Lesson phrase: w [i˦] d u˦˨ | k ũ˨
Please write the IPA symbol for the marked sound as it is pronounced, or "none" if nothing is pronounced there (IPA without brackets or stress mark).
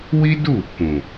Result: i˦